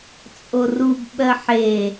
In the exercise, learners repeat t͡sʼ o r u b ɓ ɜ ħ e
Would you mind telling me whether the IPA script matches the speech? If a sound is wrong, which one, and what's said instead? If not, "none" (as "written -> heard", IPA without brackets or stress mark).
none